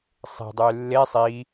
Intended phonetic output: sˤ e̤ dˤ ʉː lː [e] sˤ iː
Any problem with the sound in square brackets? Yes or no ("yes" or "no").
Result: no